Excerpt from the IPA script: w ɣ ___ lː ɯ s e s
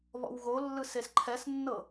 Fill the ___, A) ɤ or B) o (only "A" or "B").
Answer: B